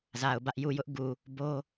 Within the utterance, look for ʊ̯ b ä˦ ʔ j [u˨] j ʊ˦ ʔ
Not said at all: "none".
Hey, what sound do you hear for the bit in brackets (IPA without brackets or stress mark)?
u˨